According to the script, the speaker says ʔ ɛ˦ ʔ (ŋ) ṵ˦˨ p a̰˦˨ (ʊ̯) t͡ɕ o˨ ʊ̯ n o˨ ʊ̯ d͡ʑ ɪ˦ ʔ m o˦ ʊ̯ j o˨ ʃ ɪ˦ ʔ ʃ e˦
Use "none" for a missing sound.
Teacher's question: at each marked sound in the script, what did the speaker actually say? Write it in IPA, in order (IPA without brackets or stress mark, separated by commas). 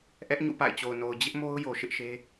ɲ, ɪ̯